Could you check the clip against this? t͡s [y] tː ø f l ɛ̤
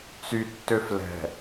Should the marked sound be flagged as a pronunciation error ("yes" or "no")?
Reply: no